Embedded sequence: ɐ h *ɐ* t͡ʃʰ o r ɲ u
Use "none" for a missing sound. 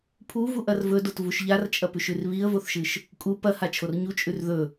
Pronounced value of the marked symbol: a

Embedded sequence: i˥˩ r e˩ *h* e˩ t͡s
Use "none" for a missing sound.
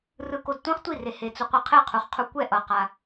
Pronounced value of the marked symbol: h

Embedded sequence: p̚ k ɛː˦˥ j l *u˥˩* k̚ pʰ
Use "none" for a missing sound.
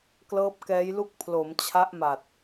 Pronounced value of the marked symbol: u˥˩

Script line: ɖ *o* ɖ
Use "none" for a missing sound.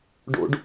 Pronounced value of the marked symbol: o̰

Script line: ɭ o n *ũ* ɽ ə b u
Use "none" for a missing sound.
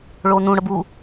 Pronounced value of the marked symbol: ũ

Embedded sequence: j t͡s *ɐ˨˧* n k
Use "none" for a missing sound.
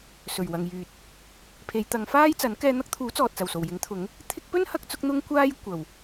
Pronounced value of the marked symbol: ɐ˨˥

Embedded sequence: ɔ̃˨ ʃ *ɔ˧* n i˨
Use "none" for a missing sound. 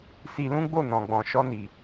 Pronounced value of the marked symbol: ɔ˧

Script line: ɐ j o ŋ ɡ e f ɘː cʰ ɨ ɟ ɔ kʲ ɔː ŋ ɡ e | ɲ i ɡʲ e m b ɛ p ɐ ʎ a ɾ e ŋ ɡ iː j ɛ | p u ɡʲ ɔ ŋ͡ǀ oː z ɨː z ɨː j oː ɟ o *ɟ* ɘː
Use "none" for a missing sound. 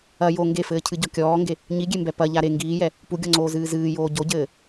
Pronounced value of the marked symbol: ɟ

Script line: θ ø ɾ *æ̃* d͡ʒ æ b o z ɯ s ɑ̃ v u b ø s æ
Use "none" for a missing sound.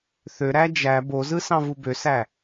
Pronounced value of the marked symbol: æ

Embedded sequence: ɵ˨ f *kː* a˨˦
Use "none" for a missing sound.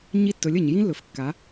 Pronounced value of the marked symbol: kː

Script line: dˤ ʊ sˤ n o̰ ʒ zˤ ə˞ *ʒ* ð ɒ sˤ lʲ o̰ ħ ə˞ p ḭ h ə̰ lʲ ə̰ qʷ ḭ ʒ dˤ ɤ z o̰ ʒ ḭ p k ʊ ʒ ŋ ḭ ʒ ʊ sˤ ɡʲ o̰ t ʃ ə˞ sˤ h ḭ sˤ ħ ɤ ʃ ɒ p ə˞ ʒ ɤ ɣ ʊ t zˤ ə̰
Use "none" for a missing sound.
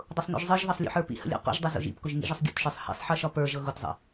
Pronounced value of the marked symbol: ʒ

